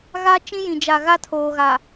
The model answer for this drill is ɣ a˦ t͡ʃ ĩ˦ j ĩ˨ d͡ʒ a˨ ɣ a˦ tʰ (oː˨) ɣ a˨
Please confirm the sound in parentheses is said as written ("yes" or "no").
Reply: yes